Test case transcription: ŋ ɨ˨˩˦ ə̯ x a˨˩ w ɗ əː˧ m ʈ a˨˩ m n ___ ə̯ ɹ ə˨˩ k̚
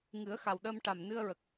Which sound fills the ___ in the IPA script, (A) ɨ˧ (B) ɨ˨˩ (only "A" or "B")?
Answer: A